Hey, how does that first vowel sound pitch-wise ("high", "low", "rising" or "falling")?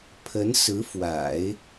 rising